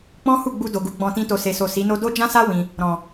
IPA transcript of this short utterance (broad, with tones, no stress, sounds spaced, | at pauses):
k͡p ɔ̃˦ h u˦˨ ɡ͡b u˧ d o˨ ɡ u˨˦ ɡ͡b ɔ̃˧ t ĩ˦ t o˧ s e˨ s o˨ s i˨˦ n o˦ d o˦ d͡ʒ ã˦ s a˦ w ĩ˧ | ɾ ɔ̃˨